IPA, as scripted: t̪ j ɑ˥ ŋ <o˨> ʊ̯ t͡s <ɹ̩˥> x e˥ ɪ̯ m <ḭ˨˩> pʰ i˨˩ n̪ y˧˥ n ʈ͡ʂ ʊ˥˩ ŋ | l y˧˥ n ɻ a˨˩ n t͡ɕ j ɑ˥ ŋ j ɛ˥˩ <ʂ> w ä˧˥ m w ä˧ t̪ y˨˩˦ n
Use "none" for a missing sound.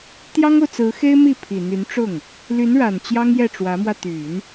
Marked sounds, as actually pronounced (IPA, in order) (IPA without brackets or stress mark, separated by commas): o˨, ɹ̩˧˥, i˥˩, ʈ͡ʂ